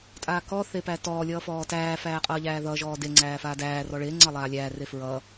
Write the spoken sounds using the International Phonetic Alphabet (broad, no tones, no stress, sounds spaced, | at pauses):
tʼ aː k ɔː θ e p æ t ɔː lʲ ʌː f ɔː t æː f æː qʼ ʌː ʎ æː ð ʌ ʒ ɔː d e ŋ͡ǀ æː f aː d æː r ɔ ɭ e ŋ͡ǀ ʌ lˠ aː lʲ æː r e f ɹ ʌː